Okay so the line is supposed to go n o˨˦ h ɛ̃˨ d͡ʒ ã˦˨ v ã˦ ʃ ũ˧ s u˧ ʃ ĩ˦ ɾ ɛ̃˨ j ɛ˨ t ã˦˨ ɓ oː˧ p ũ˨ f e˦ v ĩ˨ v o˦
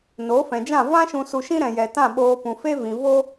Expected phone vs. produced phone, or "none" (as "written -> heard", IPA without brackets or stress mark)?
h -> f